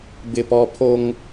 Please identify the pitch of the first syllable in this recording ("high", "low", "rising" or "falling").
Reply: high